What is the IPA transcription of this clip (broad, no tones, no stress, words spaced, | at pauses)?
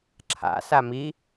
ǁʰa̰ sami